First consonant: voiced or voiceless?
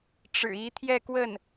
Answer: voiceless